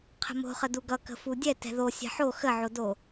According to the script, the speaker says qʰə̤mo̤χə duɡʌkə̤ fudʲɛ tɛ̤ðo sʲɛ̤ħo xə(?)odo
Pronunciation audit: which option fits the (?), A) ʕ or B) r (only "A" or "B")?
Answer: A